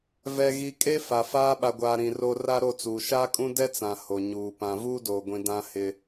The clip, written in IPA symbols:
v ɛ˨ ɣ i˨ kʼ e˦ f a˨ f aː˦ ɓ a˨ ɡʷ aː˨ ɾ ĩ˨ r o˦ r a˦ ɾ o˦˨ t͡s uː˨ ʃ aː˦ kʼ ũ˦ d ɛ˦ t͡s ã˨ h o˨ ɲ uː˨ p ã˨ v uː˦ d oː˨ ɡʷ ĩ˨ d ã˦ h ɪ˦

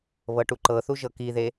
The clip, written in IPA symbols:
β ɤ ʈ u ǃ ɤ θ u ʒ ɤ k i ð e

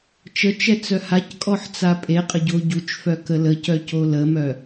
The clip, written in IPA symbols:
t͡ʃ ə t͡ʃ ɛ t͡s œ h a c kʼ ɔ ħ t͡s a pʼ e qʼ ə ɟ o ɟ u t͡ʃ f œ k ə l ə c œ c o l ə m œ

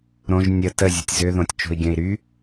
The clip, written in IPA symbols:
ɾ õ ʒ nʲ ə t ə zʲ ʊ tʲ z ʏ ð õ tʲ t͡ʃ o̤ i̯ ɡʲ œ̃ i̯ ɾ y

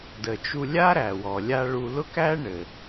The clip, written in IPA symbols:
d ə˩ t͡ʃ u˧ lʲ a˥ ɾ æ˩ w ɔ˩ lʲ a˧ ɭ u˧ l ʊ˥ k æ˥ ɳ ɘ˩

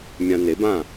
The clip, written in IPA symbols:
mʲ ã˧ n e˩˥ b ã˥˩

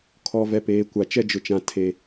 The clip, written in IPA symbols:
kʰ ɔ˨ v ɛ˨ p eː˨ kʷ a˨ t͡ʃ ɛ˦ d͡ʒ ʊ˨ t͡ʃ ã˨ tʰ e˨

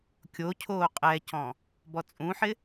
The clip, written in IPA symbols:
kʲ o cʰ oː qʼ ɛ c ɔ̃ | b ɔ t͡sʼ ũ ħ ɪ

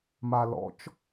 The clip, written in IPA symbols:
m a l ɔ̰ t͡ʃ

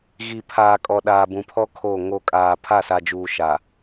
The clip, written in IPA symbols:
ɣ i˨ pʰ aː˨ kʼ ɔ˨ ɗ aː˨ b ũ˨ pʰ ɔ˦ kʰ oː˦˨ ŋ o˦ kʼ aː˨ pʰ a˦˨ s a˨ d͡ʒ uː˨ ʃ a˨

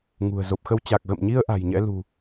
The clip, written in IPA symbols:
ŋ ṳ˨˩ ə̯ z o˨˩ p̚ x ə˧ w t͡ɕ a˨˩ k̚ ɣ ə̰˧˨ m ɲ i˧ ə̯ ʔ a̤˨˩ j ɲ ɛ̰˧˥ l ṳ˨˩

